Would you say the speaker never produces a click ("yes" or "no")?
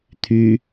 yes